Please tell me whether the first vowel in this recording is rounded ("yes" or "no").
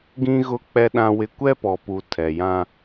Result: no